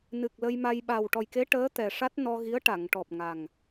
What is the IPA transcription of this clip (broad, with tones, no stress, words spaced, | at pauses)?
nɨ˨˩k̚ lə˧jma˧j ɓa˨˩wʈɔ˨˩jke˧˥ ʈəː˧˥t̪ɛ˨˩ ʂa˦˥t̚nɔ˧ɣi˧˥ə̯ ʈa˨˩˨ŋʈɔ˨˩p̚ŋa˨˩ŋ